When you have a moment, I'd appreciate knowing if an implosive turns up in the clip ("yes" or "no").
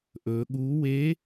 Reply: yes